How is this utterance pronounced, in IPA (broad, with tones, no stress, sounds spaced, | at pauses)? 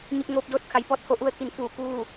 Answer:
ɲ i˧ p̚ ŋ oː˧ p̚ d oː˥˨ t̚ kʰ a˩ j p ɔː˧ t̚ h o˩˧ ʔ u˧ ə̯ t̪ʰ i˩˧ n f uː˧˩ k uː˥˨